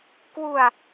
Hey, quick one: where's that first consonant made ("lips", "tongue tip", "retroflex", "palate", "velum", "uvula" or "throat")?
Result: velum